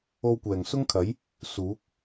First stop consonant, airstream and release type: plain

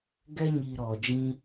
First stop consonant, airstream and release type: plain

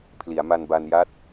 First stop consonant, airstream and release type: aspirated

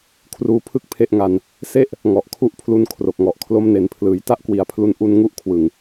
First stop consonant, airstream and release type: aspirated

